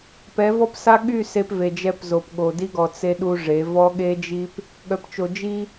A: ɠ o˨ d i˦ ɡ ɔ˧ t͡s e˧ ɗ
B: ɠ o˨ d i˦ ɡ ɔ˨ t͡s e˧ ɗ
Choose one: B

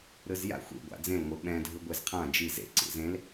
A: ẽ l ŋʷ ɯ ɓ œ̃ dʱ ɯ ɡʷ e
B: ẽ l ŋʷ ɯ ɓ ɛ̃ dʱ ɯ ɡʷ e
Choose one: B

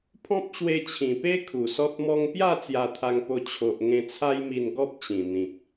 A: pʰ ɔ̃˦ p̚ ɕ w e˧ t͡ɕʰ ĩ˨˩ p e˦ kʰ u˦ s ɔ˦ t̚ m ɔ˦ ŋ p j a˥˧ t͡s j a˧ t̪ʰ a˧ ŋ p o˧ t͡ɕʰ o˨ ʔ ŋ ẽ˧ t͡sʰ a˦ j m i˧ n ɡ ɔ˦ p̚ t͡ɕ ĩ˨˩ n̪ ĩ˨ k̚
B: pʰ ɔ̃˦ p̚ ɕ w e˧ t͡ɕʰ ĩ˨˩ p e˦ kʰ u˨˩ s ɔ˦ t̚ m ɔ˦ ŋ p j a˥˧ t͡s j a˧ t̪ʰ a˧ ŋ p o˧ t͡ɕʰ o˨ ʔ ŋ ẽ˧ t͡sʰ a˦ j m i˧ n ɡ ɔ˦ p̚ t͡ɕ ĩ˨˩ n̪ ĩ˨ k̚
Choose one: B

